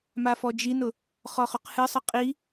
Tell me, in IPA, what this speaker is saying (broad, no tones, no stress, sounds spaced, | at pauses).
m a f ɔ d͡ʒ i n ʊ | χ ɔ χ ʊ q h ɨ sˤ ɨ qʼ i